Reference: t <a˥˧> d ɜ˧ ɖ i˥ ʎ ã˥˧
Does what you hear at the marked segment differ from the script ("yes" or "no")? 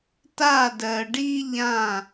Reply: no